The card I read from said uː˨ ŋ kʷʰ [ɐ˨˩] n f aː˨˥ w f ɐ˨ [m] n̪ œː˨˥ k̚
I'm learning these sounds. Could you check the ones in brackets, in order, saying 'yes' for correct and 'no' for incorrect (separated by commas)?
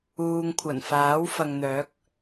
yes, no